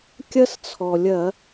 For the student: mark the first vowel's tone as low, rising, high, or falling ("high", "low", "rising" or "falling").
high